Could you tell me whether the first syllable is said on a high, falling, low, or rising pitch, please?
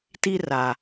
high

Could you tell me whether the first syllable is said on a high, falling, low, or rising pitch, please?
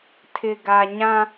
low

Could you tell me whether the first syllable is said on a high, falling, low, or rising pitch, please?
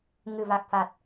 low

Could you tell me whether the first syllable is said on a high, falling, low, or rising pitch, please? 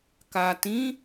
low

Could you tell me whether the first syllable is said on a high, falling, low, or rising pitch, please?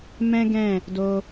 high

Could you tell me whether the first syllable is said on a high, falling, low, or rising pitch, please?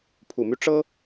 low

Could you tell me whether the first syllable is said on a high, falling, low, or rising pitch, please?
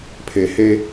low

